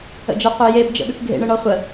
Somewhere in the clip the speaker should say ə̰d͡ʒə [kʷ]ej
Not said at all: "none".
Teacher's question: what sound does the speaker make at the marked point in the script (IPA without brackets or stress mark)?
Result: qʷ